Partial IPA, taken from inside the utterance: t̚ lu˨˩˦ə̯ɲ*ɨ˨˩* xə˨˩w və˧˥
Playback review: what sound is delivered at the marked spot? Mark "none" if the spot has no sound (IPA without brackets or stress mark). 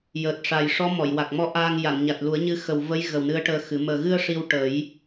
ɨ˧˥